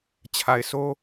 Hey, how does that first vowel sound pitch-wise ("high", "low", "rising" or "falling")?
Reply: low